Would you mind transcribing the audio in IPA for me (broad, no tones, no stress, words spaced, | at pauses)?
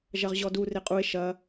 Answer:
ʒɐʁʑɔdu reqʼue̯ ʃɐ